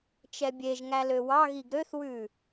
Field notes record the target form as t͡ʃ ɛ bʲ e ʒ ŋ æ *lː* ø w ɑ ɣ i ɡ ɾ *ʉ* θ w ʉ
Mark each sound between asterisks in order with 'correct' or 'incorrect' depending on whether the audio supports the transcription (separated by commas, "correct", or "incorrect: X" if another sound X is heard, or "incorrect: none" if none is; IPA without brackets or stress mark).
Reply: incorrect: l, incorrect: ø